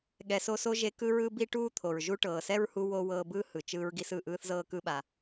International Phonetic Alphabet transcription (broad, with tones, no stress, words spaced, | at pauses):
ɠɛ˨so˦so˥ ʒe˦kɯ˥ɹɯ˥ bi˥ʈuː˥t̪ʰo˩ɹ ʒu˦ʈɤː˩sɛ˥ɹhu˦ wo˦ wɤː˦bɯː˥ hɯ˩t͡ʃɯː˦ɹɡi˦s ɯ˩ ʔɯː˥θzɤː˥kɯ˥ɓa˨